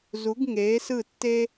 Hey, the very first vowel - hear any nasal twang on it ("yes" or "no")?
no